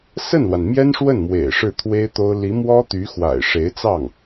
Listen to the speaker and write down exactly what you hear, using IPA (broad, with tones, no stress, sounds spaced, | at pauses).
s ə˥˩ n l w a˩ n m j ɛ˥ n ʂ w ə˥˩ n m w ḛ˨˩ ɪ̯ ʂ ɻ̩˥˩ t̪ʰ w e˥ ɪ̯ t̪ o˥ ʊ̯ l i˧˥ m w ɔ˥ t̪ y˧˥ x w a̰˨˩ ɪ̯ ʂ e˧˥ ɪ̯ t͡s ɑ˥˩ ŋ